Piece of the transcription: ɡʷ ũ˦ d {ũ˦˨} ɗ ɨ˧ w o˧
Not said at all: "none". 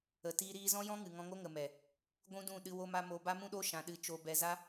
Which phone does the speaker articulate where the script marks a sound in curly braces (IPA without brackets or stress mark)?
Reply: ũ˦˨